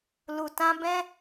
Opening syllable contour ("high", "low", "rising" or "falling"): low